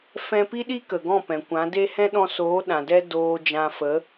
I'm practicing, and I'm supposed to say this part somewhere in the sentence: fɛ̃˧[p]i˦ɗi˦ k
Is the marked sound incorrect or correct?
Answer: correct